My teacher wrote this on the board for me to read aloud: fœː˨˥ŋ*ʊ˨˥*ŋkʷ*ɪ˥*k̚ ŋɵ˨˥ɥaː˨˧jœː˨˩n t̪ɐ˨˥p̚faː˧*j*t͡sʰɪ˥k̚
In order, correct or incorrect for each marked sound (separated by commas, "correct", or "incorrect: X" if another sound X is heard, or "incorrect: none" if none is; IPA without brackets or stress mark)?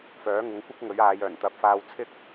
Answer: correct, correct, incorrect: w